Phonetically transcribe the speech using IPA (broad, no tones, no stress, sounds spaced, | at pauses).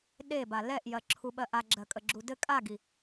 ɗ e b a l ɛ ʔ j ɜ ǁʰ u ɓ ɜ ʔ a ɡ͡ǁ ɜ kʼ ə ɡ͡ǁ u d ɘ kʼ a ɡ i